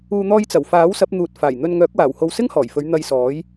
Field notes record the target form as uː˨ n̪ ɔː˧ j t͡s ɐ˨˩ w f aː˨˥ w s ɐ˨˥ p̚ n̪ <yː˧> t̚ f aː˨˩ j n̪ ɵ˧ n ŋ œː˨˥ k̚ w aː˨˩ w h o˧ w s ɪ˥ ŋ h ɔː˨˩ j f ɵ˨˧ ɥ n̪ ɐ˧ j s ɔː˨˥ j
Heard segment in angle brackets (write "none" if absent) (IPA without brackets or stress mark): uː˧